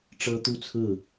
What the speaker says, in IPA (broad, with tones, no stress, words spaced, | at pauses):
ʈ͡ʂɤ˦t̪u˥˨t͡sʰɹ̩˥˨